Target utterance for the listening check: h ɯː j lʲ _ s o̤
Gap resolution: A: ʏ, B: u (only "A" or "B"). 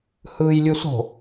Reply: B